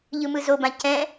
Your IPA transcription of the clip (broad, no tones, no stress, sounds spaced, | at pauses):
ʎ ɯ m ɯ z o b ã c ɛ̃